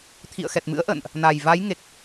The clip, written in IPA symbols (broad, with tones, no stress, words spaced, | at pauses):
t̪ʰḭ˧˨ə̯xɛ˨˩t̚mɨ̰˧˥ə̯ʔə̰ː˧˨nʔ | na˨˩j va˨˦j ŋe˨˩k̚